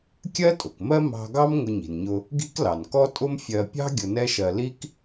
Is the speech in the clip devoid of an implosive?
yes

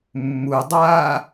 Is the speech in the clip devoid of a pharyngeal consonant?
yes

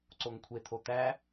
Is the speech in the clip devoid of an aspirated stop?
no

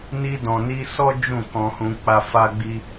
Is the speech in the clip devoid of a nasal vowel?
no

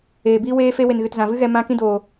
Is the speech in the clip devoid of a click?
yes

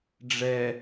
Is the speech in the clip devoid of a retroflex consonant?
no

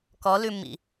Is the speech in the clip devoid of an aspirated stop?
yes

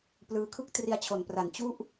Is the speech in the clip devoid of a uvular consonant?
yes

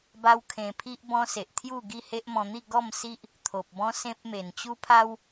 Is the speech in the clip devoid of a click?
yes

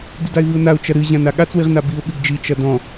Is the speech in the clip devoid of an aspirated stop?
yes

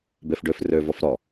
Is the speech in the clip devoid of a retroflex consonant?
no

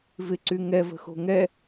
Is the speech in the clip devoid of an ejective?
yes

